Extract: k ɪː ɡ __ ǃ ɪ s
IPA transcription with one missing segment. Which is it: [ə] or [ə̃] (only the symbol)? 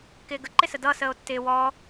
ə